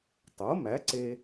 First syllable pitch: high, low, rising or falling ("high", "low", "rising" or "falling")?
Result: rising